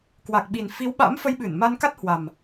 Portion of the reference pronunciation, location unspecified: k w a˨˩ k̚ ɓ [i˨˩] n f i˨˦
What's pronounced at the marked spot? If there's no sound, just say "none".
i˨˩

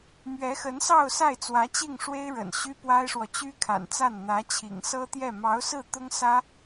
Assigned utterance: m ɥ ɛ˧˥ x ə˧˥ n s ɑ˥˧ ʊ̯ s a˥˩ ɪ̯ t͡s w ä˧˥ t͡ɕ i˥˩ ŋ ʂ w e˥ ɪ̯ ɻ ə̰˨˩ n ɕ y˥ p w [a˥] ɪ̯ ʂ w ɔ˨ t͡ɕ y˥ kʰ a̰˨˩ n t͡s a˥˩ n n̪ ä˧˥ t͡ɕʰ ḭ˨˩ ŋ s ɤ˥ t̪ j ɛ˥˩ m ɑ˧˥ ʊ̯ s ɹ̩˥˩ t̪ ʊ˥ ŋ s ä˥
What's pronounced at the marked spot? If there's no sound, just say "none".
a˥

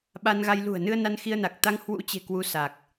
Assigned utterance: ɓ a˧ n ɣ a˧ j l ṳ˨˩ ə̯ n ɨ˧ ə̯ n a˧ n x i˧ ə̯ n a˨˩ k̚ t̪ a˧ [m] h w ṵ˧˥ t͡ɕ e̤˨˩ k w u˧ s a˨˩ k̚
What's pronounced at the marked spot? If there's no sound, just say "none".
ŋ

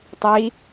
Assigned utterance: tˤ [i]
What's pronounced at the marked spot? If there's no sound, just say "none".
i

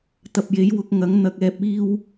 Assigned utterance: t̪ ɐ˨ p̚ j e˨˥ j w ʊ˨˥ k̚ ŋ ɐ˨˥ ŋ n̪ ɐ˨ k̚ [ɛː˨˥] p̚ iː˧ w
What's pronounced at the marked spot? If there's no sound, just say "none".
ɛː˨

